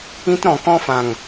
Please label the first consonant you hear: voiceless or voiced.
voiceless